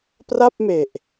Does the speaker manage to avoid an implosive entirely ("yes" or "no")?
yes